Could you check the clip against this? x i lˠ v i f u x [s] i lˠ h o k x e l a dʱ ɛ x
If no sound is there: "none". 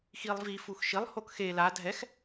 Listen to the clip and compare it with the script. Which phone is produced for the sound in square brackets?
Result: ʃ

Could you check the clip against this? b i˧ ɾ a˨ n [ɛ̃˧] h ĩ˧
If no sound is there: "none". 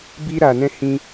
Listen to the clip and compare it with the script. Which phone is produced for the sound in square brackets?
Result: ɛ̃˧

